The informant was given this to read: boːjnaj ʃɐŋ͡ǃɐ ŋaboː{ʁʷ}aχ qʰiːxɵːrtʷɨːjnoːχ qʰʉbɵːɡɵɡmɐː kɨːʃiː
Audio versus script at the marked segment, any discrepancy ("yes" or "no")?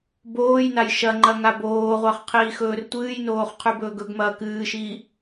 no